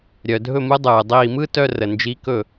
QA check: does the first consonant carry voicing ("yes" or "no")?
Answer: yes